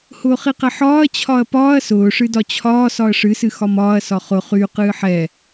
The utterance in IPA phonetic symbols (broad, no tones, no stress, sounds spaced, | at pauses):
h ʊː χ i q ɛ ħ ɒː ɐ̯ t͡ɕʰ ɒ ɐ̯ p ɒː ɐ̯ s ʊː ʂ ɨ d ɒ t͡ɕʰ ɒː s ɒ ɐ̯ ʂ ɨ s ɨ x ɒ m ɒː ɐ̯ s ɒ χ ʊ χ y q ɨː ħ ɛ